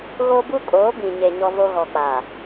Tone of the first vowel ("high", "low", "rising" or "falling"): high